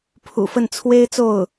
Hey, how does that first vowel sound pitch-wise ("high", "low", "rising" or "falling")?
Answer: low